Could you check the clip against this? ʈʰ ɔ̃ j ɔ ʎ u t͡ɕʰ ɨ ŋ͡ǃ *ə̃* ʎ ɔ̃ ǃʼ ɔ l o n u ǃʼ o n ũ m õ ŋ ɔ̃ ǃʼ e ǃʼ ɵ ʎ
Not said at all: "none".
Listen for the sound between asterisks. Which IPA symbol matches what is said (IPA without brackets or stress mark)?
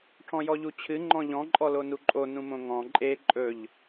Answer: ɔ̃